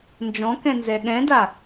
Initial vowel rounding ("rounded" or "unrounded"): rounded